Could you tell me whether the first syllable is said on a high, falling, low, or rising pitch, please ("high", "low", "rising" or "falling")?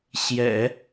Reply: low